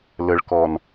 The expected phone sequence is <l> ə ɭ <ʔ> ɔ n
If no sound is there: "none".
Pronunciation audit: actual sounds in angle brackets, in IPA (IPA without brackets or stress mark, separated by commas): l, k